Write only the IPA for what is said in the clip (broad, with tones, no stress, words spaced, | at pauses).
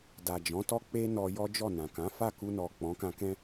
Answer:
da˨d͡ʒɔ̃˨˦tɔ˦ k͡pe˦ nɔ˧jɔ˦d͡ʒɔ˦˨ nã˨ kã˨˦ fa˦˨ku˧nɔ˨ k͡pɔ̃˨˦kã˧kɛ̃˦